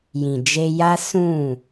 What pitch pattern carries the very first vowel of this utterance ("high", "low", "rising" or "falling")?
low